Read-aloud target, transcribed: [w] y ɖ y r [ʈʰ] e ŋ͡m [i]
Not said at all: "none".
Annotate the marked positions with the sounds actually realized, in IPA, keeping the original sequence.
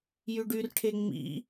j, ʈʰ, ḭ

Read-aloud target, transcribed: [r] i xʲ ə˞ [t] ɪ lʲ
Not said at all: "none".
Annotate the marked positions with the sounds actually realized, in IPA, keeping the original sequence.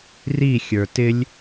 r, t

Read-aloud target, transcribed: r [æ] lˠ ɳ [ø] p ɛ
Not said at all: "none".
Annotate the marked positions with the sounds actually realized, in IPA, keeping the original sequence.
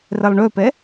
ɛ, ø

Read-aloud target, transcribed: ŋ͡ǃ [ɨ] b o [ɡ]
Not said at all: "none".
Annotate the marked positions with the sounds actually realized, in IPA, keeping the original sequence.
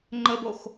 ə, x

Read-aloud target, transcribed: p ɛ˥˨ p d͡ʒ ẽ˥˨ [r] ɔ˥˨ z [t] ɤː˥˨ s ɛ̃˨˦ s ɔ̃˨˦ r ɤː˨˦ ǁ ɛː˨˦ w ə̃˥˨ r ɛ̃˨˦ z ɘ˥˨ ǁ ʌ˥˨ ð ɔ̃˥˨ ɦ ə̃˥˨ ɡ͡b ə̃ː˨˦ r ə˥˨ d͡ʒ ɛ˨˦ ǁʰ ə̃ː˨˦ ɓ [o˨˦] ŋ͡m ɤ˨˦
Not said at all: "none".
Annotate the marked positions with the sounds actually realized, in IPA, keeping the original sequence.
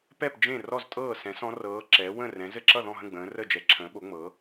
r, tʼ, o˨˦

